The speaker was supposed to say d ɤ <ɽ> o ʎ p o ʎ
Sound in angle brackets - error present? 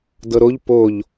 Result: yes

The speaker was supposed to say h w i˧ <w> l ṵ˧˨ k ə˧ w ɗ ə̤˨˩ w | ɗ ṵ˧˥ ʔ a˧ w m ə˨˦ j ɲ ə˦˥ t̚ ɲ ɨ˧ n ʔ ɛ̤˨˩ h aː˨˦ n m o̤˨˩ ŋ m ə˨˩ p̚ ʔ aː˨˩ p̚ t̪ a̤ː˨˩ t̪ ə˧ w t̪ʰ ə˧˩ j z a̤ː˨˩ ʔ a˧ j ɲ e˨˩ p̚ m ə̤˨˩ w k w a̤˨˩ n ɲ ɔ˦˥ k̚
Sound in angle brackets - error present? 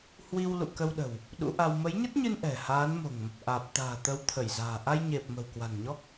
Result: no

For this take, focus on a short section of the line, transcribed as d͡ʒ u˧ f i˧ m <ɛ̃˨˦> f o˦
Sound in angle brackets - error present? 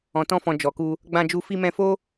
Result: yes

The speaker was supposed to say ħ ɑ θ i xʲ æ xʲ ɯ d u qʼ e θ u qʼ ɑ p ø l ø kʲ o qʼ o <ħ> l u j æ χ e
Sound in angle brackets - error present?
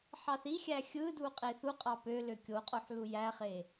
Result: no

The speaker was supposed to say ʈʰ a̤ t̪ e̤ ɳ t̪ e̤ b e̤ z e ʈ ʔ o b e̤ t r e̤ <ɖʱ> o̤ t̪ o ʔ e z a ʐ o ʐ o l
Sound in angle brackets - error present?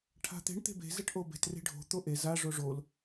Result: no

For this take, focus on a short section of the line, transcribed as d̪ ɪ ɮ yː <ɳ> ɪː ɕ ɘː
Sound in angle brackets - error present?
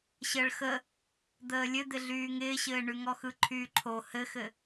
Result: yes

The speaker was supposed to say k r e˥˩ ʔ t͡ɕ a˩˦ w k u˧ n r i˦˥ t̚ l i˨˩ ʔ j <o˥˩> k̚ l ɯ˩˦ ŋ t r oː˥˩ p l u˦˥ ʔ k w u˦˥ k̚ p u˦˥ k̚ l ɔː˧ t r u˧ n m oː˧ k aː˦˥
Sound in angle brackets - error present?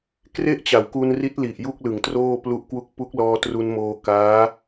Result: yes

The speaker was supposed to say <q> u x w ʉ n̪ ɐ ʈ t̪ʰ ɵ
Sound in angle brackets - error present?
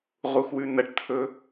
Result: yes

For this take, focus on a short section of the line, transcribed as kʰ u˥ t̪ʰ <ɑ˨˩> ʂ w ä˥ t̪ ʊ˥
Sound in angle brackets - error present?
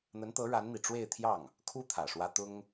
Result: yes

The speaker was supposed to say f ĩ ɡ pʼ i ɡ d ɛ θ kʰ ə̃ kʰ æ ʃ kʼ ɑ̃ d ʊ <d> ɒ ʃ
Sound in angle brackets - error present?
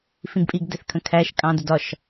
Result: no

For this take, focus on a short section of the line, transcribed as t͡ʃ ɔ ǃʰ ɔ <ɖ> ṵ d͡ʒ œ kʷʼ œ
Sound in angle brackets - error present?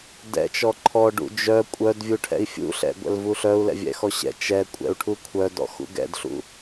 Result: no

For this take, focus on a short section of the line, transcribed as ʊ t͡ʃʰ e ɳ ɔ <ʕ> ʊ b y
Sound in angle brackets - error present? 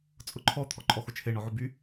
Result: no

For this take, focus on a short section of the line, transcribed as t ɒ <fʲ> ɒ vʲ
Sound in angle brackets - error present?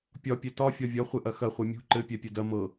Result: no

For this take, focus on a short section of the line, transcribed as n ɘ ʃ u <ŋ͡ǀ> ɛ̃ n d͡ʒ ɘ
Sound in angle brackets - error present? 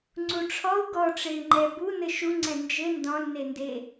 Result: no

